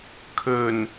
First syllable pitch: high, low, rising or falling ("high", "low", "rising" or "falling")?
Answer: low